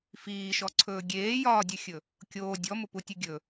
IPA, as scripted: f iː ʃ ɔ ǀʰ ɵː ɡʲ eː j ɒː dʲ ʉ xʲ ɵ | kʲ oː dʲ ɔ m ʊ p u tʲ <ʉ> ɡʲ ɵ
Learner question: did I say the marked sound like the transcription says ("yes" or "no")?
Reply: yes